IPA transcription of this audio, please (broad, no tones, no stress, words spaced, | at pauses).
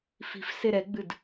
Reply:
fi̤f seɾɛɡ͡bɨd